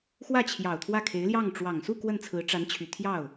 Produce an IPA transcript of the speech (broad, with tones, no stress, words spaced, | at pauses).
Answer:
xwä˥˩t͡ɕʰjɑ˨˩ʊ̯ t̪ʰwä˥˩kʰe˧˥ɪ̯ljɑ˥˩ŋ ʈ͡ʂwɑ˨˩ŋsu˥˧ kwə˥˩nt͡sʰɹ̩˧˥ʈ͡ʂa˧˥nt͡ɕʰy˨˩ t̪ʰjɑ˥˩ʊ̯